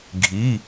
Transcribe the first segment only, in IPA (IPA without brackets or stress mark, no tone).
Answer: ɡʱ